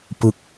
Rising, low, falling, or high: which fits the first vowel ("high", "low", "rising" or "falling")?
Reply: falling